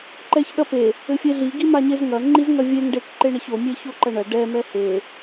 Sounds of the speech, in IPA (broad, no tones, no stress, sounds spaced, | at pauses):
ǃ ɛ ç ɗ ɐ p e | ɘ fʲ e ɮ i ɡ i m a ɲ e z ŋ ɐ ŋ͡ǃ i z ŋ ɐ vʲ e ŋ ɖ e k ǃ e ɳ ɐ ç o mʲ e ç o ǃ ɐ ɳ ɐ ɖ ɛ m ɛ h e